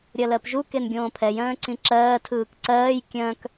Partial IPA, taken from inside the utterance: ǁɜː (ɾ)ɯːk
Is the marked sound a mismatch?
yes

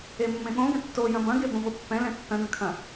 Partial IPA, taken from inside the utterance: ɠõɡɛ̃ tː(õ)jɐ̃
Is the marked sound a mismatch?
yes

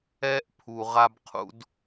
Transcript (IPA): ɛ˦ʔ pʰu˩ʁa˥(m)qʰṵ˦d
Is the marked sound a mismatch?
yes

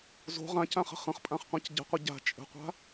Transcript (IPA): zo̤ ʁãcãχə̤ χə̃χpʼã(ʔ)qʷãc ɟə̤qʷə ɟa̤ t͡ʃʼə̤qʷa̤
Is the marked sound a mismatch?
yes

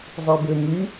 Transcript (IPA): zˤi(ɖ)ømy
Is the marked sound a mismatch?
yes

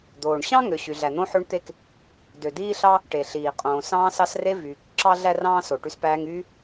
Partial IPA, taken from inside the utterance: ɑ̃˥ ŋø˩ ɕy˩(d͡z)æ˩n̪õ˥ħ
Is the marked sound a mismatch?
yes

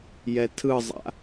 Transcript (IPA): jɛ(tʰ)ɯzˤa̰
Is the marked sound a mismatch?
no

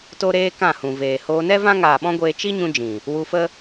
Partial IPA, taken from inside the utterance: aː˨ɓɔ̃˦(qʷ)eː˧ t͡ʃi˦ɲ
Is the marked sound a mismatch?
yes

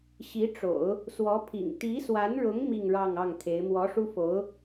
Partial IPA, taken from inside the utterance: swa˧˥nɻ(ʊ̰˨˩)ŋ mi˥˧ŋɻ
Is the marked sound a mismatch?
yes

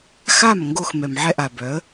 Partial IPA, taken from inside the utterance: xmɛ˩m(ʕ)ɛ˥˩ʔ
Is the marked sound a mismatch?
no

